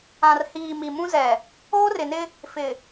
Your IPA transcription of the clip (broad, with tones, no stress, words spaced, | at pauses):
ã˨rhiː˨ mi˨mũ˦ zɛ˨ | oː˦rɪ˨nɪ˦ | fɪ˨